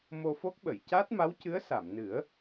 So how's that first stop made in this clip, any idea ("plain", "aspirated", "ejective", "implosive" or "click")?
plain